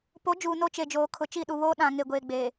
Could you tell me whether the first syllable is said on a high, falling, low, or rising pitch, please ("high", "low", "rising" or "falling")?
rising